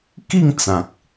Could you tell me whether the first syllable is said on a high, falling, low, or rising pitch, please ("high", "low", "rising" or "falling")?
falling